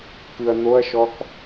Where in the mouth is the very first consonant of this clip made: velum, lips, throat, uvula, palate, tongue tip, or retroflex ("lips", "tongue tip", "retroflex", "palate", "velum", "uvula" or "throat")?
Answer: velum